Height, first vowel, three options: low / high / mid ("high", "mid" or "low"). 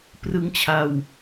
high